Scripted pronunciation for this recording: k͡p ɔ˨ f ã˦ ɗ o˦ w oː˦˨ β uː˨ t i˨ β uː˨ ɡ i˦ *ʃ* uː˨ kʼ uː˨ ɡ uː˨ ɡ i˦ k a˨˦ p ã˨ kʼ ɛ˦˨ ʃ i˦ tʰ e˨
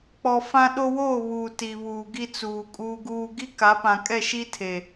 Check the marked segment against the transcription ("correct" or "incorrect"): incorrect